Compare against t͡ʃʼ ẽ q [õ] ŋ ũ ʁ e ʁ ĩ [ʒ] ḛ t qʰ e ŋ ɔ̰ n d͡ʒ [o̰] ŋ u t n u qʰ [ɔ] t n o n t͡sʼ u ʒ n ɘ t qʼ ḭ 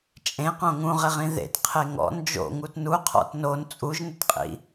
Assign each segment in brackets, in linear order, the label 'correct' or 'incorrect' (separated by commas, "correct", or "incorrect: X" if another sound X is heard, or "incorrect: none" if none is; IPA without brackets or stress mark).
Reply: correct, incorrect: ð, correct, incorrect: ɔ̰